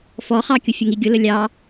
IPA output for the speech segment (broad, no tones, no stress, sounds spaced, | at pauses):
f ɔ χ ɑ kʲ ʊ fʲ ə ŋ i ɡʲ ʊ l ə lʲ ɑ